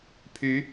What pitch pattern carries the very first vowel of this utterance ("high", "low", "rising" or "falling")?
rising